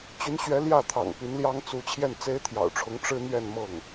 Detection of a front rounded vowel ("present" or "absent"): present